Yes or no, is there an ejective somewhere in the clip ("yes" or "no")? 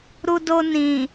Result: no